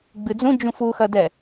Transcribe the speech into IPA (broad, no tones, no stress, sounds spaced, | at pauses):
ɡ͡b ɨ d͡z ũ d͡ʒ ũ f u x ɐ d ɛ